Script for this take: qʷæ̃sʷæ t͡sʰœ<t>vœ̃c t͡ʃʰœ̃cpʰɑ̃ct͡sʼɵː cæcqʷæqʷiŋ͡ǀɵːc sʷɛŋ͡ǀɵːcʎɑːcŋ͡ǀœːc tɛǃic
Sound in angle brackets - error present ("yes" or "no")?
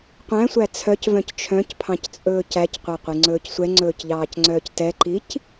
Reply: yes